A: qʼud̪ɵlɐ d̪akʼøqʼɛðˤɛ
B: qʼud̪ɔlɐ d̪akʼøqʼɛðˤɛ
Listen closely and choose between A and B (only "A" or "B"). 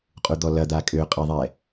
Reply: B